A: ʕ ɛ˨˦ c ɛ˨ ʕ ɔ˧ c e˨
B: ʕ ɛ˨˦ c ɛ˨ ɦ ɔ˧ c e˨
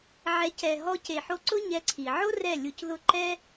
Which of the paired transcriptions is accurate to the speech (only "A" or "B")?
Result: B